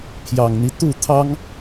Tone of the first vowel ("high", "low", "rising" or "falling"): low